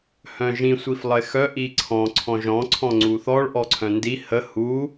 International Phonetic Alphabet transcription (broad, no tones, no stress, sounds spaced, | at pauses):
h œ̃ ʒ ĩ sʷ i f lˠ ə e̯ x œ ʔ i ǀʰ ɔ̃ ǀʰ ɔ̃ ʒ ɔ̃ ǀʰ ɔ̃ ŋ͡ǀ u θ ɔ ɭ ʔ ɔ ǀʰ œ̃ n d i h ə h u